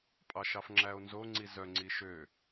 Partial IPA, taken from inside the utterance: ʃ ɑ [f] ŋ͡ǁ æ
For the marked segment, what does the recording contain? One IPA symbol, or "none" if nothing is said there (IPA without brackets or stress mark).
f